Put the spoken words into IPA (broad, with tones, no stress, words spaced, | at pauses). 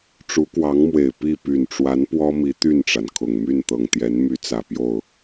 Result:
ʈ͡ʂu˧˥kwɑ˧˥ŋmwe˨˩ɪ̯ pi˥˩ py˨˩nʈ͡ʂwa˧˥n pwɔ˥mi˧˥ t̪y˥˩nʈ͡ʂa˩nkʰʊ˨˩ŋ my˥˩n t̪ɤ˨˩ŋt̪jɛ˧˥nmy˧˥ t͡sä˨˩pjo˥˩ʊ̯